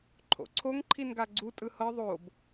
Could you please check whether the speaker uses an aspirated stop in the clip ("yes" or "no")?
yes